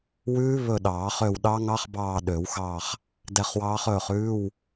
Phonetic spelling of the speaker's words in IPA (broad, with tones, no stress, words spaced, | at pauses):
wʉː˦˥ βɵ˦˨ɗɑː˨˩˦ χø˦˨wɗɑ˦˥ ŋɑ˦˥χbɑː˦˨ ɗø˨˩˦wxɑː˦˨χ | dɛ˦˨χwɑː˦˥χ ɵː˦˨χʉː˧˥˧w